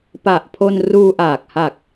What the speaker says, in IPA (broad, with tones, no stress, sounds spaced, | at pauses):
p a˨˩ ʔ pʰ o˧ n r uː˧ ʔ aː˨˩ k̚ h a˨˩ k̚